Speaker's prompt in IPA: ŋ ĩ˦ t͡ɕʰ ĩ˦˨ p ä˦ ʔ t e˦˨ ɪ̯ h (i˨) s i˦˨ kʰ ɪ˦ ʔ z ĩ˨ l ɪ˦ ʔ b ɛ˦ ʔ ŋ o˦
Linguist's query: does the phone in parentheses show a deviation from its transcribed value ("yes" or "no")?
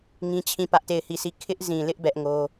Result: yes